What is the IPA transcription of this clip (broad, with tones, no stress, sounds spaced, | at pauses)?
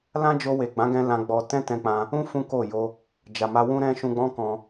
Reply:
l ã˦ d͡ʒ o˧ w e˨ ɡ͡b ã˨˦ ɡ ɛ̃˧ l ã˧ ɡ͡b ɔ˧ t ɛ̃˦ t ɛ̃˦ k͡p ã˦ | ũ˦ f ũ˦ k o˦˨ j o˧ | d͡ʒ a˨ m a˧ w ũ˦ ɾ ɛ̃˦ ʃ ũ˧ ɡ͡b ɔ̃˦ k ɔ̃˧